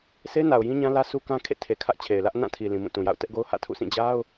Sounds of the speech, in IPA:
sʰe˦ na˨ʊ̯ jĩ˦ɲã˦lä˦ su˦kã˦kʰḛ˦˨ tʰe˨ kʰä˦ʔt͡ɕʰe˨ɪ̯lä˦ʔ nã˦˨tʰi˨ lĩ˨mũ˦˨tũ˨ja̰˦˨ʊ̯ tɛ˦ʔɡo˦ʊ̯ hä̰˦˨tʰṵ˦˨sĩ˦˨ d͡ʑa˦ʊ̯

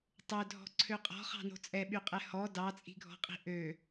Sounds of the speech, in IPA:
tˤødʱɔ̤ǀʰø qʼɔ̤χɑ̤no̤ t͡sʼɛɓyqʼɛ hɔ dɑt͡sʼi̤ɡʱɔ̤qʼi̤ ʔø

